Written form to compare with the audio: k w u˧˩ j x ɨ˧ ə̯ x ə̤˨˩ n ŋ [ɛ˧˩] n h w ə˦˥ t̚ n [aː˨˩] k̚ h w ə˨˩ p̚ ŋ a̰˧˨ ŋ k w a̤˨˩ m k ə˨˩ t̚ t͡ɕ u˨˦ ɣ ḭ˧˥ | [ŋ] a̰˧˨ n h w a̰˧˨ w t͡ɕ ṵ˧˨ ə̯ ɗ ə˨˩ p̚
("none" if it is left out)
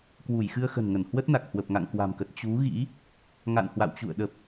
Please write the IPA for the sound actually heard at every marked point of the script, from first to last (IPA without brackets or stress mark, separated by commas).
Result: ə˧˩, a˨˩, ŋ